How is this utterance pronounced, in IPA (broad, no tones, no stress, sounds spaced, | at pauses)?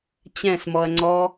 t͡ɕ ɛ̃ s m ɔ ɐ̯ ŋ͡ǀ ɔ